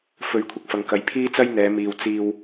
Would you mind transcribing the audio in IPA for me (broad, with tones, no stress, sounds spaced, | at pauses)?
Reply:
f ɵ˨˥ ɥ kʷʰ ɪ˨ k̚ f ɐ˨˧ ŋ k ɐ˨˧ j pʰ iː˥ t͡s ɐ˥ j n̪ ɛː˨˧ m iː˨ w t͡s iː˧ w